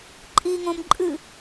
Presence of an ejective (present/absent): present